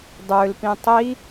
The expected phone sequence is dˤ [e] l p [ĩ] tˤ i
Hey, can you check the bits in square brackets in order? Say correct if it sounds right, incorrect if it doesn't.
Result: incorrect, correct

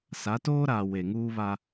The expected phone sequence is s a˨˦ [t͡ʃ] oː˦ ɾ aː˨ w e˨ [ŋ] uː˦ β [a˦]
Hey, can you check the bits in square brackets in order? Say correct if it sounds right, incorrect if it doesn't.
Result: incorrect, correct, correct

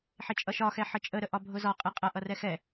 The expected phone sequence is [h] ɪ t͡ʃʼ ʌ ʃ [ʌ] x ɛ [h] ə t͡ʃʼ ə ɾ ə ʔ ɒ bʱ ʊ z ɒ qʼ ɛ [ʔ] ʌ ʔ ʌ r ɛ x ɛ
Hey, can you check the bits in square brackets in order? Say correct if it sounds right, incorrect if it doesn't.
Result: incorrect, incorrect, incorrect, incorrect

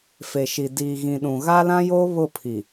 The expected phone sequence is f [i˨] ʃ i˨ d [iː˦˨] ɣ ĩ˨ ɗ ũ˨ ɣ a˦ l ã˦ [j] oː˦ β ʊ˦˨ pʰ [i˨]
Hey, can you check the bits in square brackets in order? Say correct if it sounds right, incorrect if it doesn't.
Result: incorrect, incorrect, correct, correct

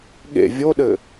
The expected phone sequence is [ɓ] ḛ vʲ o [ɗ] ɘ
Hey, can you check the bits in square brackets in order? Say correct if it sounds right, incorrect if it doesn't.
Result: incorrect, correct

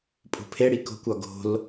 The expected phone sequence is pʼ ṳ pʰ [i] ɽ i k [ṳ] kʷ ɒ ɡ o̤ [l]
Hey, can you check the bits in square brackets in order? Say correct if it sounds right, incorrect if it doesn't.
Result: incorrect, incorrect, correct

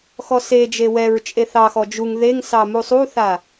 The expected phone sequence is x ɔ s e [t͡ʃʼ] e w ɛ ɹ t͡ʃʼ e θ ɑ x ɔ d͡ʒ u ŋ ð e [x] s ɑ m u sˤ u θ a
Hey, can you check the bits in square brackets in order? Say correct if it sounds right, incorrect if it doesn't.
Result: incorrect, incorrect

